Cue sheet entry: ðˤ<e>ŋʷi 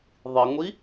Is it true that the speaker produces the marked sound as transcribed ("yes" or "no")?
no